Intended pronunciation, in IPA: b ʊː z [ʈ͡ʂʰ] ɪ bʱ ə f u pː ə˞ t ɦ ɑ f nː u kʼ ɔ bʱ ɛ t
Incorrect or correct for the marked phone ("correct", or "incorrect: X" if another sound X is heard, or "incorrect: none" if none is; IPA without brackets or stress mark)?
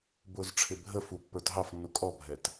correct